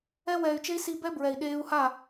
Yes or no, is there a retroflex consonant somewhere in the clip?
no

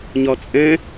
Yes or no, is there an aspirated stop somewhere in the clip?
no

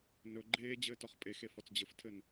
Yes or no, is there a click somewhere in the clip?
yes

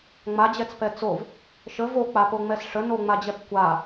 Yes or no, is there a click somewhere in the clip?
no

